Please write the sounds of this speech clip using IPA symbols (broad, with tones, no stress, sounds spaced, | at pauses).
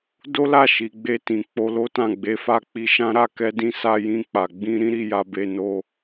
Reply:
d o˦ l a˦˨ ʃ i˨ ɡ͡b e˧ t ĩ˨ k͡p o˧ l o˦ t ã˦˨ ɡ͡b e˧ f a˦ k͡p i˧ ʃ ã˦ ɾ a˦˨ k ɛ˧ d ĩ˧ s a˧ j ĩ˧ k͡p a˨ ɡ͡b ĩ˧ ɾ ĩ˦ ɾ i˧ j a˧ b e˧ n o˧